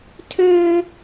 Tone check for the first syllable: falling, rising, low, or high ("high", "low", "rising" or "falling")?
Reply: high